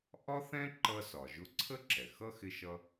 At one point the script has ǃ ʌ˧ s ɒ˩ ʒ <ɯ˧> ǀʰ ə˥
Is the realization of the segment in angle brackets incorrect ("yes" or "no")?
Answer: yes